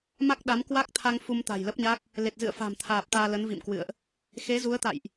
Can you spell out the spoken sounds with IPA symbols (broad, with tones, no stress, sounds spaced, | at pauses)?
m a˦˥ k̚ ɗ a˨˦ m k w a˦˥ k̚ t̪ʰ a˧ ŋ f u˧ m t̪ a̤˨˩ j l ə˦˥ p̚ ɲ a˦˥ k̚ | l e˨˩ t̚ z ɨ̰˧˨ ə̯ f a̤˨˩ m t̪ʰ aː˨˩ p̚ t̪ aː˧ l ə˨˦ n v ḭ˧˨ m k w ɨ̰˧˨ ə̯ ʔ | x e˨˦ z u˨˦ ə̯ t̪ a̰˧˨ j ʔ